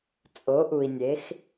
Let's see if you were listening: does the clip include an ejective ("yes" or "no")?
yes